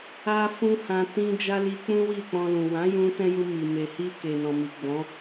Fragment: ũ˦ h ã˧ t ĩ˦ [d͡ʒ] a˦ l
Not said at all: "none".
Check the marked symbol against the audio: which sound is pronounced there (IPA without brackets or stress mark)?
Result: d͡ʒ